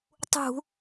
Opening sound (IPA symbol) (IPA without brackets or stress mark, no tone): tˤ